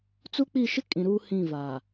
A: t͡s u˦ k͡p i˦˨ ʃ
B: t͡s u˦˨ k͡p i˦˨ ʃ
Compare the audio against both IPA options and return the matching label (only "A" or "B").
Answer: A